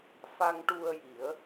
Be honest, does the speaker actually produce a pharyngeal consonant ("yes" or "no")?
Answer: no